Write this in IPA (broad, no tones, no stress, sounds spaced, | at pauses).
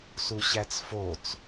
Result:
s u ɕ æ t͡s f o t͡s